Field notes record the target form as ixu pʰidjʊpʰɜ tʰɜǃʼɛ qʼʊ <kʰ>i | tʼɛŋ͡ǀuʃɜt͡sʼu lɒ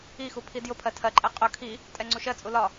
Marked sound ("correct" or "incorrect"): correct